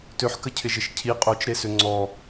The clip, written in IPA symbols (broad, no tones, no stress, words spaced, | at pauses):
tøħkəcʰɪʒɪʃ cʰi qʼot͡ʃɾesø ŋ͡ǀɔ